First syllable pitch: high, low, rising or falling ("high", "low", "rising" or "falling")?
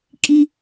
high